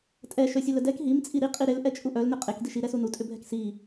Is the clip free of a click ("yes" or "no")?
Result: yes